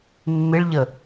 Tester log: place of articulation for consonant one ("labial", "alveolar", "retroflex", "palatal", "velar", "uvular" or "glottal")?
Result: labial